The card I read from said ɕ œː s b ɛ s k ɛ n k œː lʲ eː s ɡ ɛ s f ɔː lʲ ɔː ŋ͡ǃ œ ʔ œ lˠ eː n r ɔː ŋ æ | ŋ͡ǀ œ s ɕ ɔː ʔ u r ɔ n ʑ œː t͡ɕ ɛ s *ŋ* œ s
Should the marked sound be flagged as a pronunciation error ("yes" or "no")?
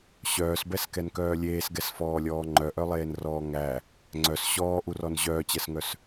no